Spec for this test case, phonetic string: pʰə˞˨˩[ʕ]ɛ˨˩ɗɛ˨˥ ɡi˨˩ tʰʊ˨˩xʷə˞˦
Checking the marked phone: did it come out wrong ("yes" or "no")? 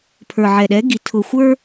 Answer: no